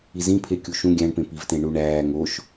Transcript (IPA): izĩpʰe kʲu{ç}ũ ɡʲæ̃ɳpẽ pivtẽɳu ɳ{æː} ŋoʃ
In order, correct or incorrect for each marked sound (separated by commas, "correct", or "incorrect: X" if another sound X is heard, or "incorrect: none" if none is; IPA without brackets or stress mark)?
incorrect: ʃ, correct